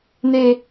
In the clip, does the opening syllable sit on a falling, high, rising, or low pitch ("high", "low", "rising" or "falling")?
high